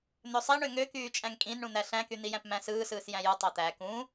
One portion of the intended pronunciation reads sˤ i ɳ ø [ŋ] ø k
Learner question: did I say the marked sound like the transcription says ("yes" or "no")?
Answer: yes